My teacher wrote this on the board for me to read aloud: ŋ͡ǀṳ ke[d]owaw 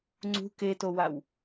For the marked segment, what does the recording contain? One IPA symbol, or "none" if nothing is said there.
t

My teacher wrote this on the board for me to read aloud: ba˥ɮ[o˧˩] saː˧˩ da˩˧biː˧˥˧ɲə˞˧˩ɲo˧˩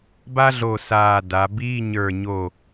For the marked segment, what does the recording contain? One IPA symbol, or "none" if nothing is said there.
o˧˩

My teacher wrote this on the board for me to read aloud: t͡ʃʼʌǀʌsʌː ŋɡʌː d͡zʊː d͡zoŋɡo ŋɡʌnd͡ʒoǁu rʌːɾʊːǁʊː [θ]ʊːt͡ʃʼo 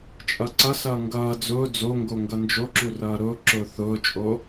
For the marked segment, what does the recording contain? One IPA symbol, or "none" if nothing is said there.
θ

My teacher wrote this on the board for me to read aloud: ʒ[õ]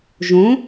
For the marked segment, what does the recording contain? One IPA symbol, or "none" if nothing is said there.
õ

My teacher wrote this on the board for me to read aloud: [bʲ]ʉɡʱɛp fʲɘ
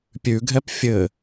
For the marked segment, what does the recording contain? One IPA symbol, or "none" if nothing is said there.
pʲ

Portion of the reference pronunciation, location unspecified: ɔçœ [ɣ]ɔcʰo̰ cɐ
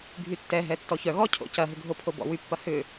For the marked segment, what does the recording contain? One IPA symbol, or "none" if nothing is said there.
ɣ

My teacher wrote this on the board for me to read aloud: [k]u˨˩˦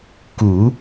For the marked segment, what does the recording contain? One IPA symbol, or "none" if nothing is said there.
k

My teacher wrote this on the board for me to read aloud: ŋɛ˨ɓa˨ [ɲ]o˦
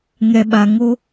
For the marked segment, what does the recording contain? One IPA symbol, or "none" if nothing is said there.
ŋ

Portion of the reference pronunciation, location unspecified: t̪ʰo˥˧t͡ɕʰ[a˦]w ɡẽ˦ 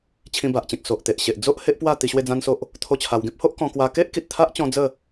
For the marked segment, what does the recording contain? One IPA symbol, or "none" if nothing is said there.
a˧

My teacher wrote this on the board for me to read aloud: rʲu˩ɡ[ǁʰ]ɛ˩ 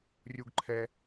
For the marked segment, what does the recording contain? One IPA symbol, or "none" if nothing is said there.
ǃʰ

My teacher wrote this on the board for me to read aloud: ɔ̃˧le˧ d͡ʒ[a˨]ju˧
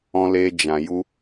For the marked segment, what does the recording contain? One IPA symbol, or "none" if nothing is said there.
ã˨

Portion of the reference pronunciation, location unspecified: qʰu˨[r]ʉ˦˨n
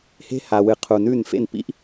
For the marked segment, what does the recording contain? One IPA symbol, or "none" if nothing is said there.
n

